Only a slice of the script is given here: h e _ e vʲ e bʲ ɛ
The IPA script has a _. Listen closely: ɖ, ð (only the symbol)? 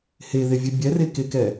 ð